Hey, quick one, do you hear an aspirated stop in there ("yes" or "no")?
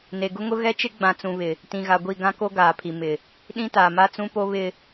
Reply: yes